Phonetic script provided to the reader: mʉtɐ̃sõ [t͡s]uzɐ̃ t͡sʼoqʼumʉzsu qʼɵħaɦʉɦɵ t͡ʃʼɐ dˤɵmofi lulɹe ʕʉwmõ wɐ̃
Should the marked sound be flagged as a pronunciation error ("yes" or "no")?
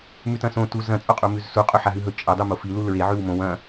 yes